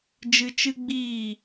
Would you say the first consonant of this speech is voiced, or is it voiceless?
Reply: voiced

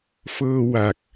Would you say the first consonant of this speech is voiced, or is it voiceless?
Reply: voiceless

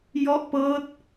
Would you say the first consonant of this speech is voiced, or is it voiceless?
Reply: voiced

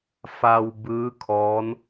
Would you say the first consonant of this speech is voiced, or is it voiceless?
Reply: voiceless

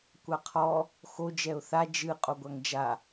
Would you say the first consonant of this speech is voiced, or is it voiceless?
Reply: voiceless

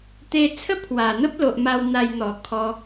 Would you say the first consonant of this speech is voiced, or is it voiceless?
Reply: voiceless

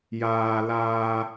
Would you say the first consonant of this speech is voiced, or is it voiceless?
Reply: voiced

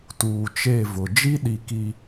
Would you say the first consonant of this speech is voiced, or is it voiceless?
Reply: voiceless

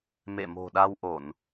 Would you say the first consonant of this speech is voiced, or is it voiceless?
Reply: voiced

